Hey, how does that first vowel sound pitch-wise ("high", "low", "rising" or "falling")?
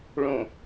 low